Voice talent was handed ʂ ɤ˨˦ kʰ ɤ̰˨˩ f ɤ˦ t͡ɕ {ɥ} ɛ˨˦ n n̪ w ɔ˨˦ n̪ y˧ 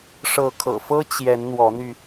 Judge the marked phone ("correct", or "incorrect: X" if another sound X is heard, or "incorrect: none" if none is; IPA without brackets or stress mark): incorrect: j